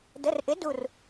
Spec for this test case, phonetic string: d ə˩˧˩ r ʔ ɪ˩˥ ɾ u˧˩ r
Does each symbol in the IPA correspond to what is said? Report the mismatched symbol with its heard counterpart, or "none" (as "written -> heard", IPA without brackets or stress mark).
ɾ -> d